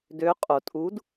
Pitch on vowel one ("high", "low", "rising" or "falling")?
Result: rising